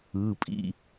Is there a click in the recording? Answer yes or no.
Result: no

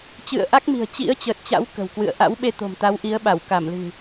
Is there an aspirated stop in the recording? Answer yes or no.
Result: no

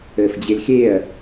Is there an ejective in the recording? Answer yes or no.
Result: no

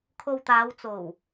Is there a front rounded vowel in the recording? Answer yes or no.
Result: no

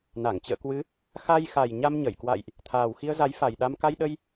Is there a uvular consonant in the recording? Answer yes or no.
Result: no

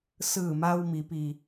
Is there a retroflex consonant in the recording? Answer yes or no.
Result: no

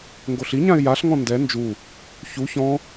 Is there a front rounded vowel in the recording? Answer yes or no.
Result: no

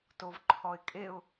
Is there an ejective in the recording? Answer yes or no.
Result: yes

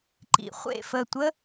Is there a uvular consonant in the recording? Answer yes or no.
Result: yes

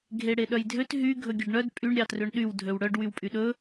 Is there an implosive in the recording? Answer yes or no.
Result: yes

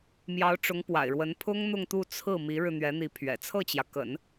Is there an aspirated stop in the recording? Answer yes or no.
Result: yes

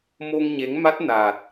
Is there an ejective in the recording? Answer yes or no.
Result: no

